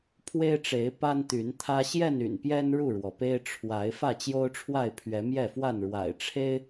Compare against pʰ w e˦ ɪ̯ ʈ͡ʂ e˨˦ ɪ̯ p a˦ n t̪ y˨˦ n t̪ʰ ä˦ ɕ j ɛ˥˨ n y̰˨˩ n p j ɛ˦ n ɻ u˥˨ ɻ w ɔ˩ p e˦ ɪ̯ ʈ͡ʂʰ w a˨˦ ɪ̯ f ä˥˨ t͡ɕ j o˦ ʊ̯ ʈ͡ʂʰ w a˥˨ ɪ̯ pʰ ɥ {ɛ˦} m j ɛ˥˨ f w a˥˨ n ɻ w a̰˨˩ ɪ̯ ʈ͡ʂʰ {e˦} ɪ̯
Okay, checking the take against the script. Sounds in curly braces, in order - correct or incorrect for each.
incorrect: ɛ˨˦, correct

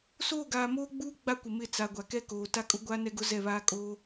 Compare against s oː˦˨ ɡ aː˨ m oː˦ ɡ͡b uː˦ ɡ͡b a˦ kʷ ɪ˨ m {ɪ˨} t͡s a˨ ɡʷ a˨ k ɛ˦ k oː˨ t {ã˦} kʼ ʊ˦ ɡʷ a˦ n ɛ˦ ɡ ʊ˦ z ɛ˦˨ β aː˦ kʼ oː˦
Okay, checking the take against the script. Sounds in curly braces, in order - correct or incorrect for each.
incorrect: ɪ˦˨, incorrect: a˦

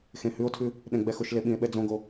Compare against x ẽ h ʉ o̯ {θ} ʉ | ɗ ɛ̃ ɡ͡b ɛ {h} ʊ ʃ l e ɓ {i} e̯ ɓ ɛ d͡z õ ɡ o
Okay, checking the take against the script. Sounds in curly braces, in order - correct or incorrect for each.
incorrect: tʰ, incorrect: x, incorrect: ĩ

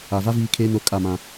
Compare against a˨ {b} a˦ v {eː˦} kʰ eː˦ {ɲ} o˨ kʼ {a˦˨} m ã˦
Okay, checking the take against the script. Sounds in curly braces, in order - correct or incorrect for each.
incorrect: v, incorrect: iː˦, incorrect: n, correct

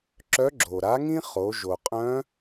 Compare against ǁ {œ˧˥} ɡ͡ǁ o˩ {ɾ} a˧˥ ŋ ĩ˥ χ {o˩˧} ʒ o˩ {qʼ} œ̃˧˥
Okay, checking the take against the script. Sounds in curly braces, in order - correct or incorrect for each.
correct, correct, correct, correct

